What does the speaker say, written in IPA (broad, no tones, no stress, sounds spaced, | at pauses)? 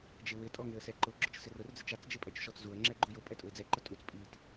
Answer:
d͡ʒ ɪ w ɪ tʼ ɔ ŋ ɪ ə̯ s ɛ ǃ ʊ ɡ͡ǁ ʊ t͡ʃ s ɪ r ʊ r d͡z ɪ t͡ʃ a t͡s d͡ʒ ɪ pʼ ɛ t͡ʃ ʃ ɔ t͡s z u ə̯ ŋ͡ǁ ɛ ɡ͡ǃ u j ʊ pʼ ɛ tʼ ʊ ɪ̯ d͡z ɛ ǃ ʊ tʼ u t͡s pʼ i t